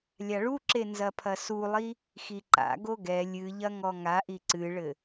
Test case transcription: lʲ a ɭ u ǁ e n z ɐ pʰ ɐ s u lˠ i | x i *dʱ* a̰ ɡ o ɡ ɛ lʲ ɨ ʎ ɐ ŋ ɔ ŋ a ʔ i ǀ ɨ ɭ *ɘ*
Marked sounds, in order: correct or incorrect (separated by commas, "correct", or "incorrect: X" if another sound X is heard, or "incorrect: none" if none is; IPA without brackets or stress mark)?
incorrect: ǃ, correct